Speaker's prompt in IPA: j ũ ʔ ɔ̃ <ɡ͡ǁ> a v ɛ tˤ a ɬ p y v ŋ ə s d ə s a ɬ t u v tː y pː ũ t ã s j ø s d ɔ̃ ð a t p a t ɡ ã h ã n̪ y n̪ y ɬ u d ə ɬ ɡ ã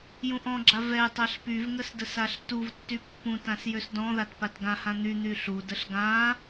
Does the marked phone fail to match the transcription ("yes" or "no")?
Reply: no